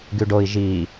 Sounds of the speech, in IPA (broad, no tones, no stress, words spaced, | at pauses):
ɡyɖoi̯ ʒi